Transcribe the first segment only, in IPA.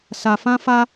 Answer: s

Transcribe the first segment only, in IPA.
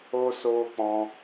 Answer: o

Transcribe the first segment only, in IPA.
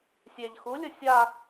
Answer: sʲ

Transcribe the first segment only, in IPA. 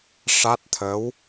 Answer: ʂ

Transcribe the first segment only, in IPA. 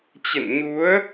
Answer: t͡ɕ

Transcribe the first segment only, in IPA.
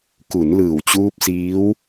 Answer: k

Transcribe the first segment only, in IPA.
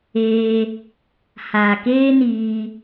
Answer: eː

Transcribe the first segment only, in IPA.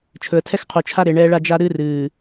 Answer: t͡ʃʰ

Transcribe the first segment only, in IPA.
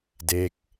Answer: d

